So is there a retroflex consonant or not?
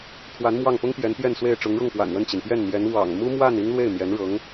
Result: yes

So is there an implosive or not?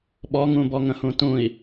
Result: yes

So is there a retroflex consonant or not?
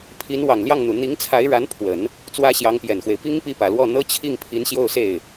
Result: yes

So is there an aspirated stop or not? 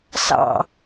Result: no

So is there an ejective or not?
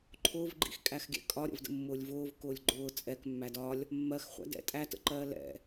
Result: yes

